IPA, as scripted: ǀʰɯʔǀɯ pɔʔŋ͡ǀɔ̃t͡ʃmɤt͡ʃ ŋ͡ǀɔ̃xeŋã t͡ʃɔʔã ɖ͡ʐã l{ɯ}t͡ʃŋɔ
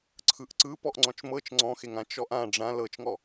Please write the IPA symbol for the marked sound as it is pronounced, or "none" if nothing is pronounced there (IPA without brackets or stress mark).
ɤ